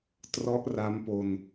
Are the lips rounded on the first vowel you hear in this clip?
yes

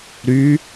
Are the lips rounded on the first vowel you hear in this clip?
yes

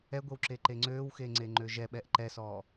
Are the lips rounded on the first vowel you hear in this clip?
no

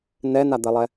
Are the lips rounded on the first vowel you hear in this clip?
no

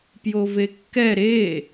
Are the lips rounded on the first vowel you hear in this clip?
yes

